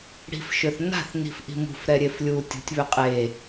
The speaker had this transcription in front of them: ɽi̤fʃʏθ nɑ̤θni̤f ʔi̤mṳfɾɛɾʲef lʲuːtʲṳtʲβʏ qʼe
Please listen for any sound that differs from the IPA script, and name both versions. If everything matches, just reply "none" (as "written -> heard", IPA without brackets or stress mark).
ɑ̤ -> a̤